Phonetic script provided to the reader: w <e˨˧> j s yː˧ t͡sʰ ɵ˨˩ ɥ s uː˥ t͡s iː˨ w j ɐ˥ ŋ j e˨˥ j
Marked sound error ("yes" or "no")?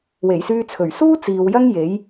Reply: yes